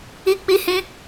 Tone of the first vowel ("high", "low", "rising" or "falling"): high